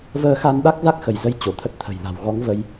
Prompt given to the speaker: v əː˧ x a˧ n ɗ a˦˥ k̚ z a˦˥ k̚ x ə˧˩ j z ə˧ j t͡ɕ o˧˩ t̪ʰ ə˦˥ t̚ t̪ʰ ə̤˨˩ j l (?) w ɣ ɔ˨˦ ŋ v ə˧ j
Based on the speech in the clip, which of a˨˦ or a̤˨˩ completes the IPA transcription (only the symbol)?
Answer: a̤˨˩